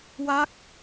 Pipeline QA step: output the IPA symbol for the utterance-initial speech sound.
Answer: w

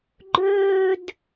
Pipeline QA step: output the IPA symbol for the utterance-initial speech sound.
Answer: ɡ͡ǃ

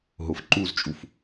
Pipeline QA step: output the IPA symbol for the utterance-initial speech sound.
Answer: ɦ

